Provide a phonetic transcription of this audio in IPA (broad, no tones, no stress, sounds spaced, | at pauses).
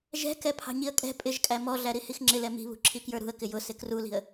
ʒ ɛ̤ k ɛ pʰ ɑ̤ ɲ i ə̯ kʼ ɛ̤ pʼ ɪ ʒ kʼ æ m ɔ ɮ æ ɾ i h i x ŋ͡ǁ ɪ l ɛ m i̤ β ṳ ǁʰ i k j ə˞ ɾ ṳ ə̯ k ɪ j ʊ s ɪ k r u l i̤ ə̯